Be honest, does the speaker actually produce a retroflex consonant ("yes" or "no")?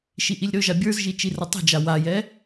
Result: no